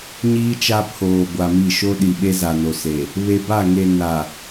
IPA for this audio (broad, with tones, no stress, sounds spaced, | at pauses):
ɲ iː˦ t͡ʃ a˦ pʰ oː˨ ɡʷ a˨ m i˦˨ ʃ o˦ ɗ i˨ ɓ e˦ z a˨ n o˨ s e˨ | β e˨ b a˦˨ ŋ e˨ n a˨